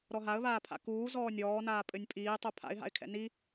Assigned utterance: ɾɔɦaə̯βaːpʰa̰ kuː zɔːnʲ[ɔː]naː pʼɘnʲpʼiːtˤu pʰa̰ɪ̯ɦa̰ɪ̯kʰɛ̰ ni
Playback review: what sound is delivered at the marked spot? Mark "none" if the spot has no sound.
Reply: ɔː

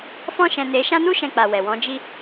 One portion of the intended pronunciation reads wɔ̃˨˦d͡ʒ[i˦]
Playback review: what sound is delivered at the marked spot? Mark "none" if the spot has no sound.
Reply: i˦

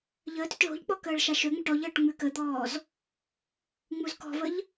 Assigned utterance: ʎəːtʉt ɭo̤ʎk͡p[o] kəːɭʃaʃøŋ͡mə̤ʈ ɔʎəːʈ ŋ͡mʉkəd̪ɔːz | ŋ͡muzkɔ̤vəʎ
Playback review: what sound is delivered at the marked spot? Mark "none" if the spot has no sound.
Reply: ɔ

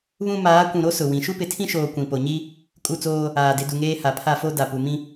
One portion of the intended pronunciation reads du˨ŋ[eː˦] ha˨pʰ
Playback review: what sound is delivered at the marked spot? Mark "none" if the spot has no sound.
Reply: eː˦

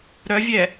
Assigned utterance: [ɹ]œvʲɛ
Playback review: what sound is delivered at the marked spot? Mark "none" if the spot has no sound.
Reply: ɾ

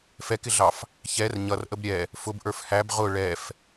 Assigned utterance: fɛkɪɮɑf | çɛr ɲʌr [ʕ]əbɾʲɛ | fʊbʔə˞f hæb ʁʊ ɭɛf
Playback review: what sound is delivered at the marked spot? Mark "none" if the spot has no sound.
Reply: ʔ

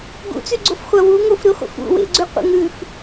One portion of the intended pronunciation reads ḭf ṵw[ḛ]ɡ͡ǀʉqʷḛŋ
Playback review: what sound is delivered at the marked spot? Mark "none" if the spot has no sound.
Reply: ḛ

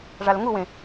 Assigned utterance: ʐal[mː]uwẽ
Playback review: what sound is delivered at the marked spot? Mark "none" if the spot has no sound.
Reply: ŋ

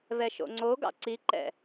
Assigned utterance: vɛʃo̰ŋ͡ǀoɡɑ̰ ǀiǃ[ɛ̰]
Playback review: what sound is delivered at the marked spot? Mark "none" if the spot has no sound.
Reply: ɛ̰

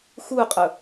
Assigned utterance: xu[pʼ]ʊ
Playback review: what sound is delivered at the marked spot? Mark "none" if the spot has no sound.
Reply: qʼ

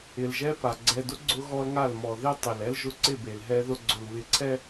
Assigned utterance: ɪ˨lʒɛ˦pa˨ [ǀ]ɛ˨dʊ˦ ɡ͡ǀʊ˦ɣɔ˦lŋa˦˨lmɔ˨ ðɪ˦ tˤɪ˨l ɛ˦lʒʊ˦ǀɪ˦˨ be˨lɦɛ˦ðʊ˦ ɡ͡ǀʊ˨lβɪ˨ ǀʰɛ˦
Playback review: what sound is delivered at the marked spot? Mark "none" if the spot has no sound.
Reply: ɡ͡ǀ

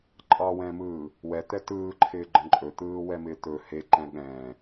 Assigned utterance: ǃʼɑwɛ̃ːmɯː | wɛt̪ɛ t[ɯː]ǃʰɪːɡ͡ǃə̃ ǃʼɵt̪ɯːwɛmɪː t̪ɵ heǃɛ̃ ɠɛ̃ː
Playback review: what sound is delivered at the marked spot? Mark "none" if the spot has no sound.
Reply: ɯː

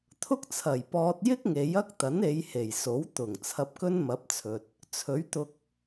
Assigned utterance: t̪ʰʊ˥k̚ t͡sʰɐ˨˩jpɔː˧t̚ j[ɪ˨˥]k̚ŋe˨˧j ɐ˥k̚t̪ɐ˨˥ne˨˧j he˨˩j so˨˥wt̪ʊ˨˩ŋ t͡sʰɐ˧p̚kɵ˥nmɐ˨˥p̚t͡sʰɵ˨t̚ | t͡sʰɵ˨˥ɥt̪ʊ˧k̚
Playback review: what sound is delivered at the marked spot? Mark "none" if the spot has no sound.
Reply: ɪ˥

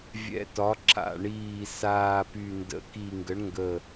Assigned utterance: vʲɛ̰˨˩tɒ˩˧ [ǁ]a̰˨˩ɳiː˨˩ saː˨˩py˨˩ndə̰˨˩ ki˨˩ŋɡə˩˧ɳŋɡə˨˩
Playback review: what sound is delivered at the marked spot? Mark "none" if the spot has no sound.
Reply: ǁ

